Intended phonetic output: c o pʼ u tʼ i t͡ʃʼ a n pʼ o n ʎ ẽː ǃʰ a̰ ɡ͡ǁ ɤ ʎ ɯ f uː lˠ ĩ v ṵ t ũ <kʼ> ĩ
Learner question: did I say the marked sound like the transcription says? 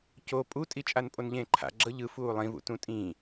no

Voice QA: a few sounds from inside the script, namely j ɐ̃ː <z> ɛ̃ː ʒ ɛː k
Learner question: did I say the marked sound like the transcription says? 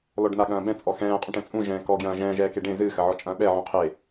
no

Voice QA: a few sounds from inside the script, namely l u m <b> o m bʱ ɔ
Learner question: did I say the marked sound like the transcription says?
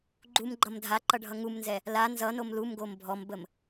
no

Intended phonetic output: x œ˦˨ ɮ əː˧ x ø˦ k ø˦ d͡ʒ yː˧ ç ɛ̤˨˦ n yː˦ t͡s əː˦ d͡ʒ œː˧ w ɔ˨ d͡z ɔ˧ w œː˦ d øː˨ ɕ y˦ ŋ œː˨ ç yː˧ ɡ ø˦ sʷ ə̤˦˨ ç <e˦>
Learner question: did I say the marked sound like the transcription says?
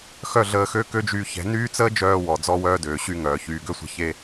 yes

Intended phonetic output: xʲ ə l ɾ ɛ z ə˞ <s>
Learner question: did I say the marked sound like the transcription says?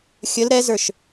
no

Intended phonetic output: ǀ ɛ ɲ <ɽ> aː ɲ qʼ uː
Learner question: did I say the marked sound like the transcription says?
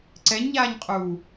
no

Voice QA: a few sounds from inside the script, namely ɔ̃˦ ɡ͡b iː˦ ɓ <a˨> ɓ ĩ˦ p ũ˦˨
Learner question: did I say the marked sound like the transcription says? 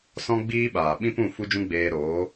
no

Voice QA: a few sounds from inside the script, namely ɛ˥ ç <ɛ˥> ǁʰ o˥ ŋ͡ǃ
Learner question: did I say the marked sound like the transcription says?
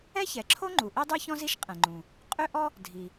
no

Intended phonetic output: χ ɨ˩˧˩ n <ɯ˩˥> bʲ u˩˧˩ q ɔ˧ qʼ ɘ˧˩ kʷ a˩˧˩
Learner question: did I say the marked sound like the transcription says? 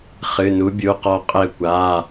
no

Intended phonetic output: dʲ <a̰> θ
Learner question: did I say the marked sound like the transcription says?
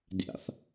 yes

